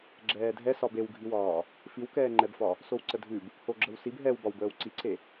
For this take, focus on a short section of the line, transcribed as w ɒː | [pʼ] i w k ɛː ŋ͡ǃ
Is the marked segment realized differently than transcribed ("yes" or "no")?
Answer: yes